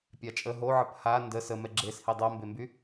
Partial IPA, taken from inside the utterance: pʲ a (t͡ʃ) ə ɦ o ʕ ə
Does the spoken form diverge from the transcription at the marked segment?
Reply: yes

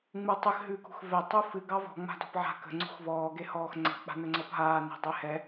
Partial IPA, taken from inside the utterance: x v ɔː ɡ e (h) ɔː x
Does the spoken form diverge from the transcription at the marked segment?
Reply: no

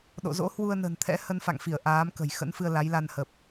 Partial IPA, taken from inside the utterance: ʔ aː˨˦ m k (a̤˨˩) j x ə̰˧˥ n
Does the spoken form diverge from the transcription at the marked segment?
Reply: yes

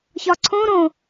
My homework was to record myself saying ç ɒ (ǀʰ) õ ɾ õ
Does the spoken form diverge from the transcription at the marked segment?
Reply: no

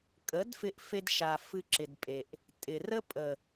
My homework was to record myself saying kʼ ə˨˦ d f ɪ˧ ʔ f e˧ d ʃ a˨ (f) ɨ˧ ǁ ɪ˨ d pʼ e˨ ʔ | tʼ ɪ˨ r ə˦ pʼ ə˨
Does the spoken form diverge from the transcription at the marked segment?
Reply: no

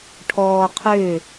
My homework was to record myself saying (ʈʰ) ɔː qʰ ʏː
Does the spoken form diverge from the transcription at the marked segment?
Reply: no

